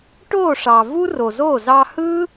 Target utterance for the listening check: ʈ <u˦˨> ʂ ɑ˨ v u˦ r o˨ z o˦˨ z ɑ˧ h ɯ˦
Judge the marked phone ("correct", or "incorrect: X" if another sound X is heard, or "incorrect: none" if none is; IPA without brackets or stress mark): incorrect: o˦˨